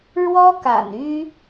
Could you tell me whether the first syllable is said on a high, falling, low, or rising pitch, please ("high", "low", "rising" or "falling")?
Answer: high